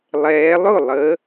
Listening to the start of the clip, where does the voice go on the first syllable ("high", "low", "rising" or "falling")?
rising